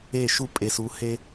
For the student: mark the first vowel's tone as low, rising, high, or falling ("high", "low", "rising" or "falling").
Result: falling